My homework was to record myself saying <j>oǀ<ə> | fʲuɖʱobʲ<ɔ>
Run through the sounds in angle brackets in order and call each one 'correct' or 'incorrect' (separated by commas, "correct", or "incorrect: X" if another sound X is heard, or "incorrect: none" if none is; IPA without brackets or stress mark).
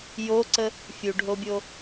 correct, correct, incorrect: o